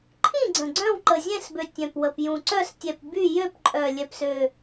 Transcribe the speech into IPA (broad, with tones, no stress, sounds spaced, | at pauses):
ǃʰ ĩ˥˨ ɡ͡ǀ ə̃˨˩ ɡ͡ǀ œ̃˥˨ w ǃ ə˨˩ zʲ ɛ̃˥˨ s b ø˨˩ tʲ œ̃˨˩ p w ə˨˩ p j ũ˨˩ ǀ œ˥˨ s tʲ ɛ˨˩ p b y˥˨ j ø˥˨ p ǃʼ œ˨˩ lʲ ɛ˨˩ p s ø˨˩